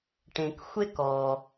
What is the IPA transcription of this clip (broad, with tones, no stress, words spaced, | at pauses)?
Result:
ʈẽ˨k xʷe˥kɔ˨